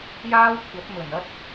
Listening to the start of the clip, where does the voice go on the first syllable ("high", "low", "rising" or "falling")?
high